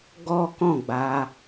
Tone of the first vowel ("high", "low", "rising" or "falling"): high